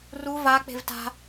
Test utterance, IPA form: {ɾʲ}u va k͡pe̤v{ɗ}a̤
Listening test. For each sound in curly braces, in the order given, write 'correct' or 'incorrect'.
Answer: incorrect: r, incorrect: t

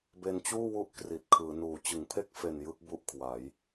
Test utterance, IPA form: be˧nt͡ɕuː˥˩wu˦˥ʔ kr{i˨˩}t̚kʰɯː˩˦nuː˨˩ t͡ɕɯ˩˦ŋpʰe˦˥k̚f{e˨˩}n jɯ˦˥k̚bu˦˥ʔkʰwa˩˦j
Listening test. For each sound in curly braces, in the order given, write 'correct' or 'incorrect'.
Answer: correct, correct

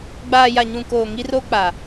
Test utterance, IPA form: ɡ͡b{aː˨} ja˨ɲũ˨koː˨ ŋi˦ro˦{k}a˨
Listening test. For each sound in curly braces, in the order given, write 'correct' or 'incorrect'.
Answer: correct, incorrect: k͡p

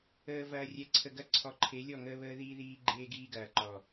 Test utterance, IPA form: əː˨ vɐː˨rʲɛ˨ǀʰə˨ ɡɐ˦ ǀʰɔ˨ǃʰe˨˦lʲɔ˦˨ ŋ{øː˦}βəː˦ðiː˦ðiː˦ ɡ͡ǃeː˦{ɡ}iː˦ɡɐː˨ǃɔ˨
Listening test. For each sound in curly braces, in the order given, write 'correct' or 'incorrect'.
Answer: incorrect: əː˦, correct

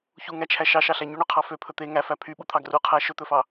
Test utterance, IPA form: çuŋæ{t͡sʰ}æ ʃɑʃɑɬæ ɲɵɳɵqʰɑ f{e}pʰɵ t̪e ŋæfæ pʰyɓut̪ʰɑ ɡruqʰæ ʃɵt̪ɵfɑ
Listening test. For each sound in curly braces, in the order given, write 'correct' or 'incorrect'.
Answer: incorrect: t͡ʃʰ, incorrect: ø

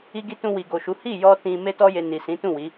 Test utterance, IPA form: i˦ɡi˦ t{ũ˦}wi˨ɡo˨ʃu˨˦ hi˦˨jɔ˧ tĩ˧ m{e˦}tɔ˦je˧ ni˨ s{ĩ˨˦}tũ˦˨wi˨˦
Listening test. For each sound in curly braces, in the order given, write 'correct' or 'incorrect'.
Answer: incorrect: ũ˧, correct, correct

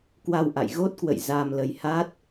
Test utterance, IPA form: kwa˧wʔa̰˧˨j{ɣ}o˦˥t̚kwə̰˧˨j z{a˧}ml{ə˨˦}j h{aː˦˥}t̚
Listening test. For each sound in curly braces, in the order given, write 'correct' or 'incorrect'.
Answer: correct, correct, incorrect: ə˧, incorrect: a˦˥

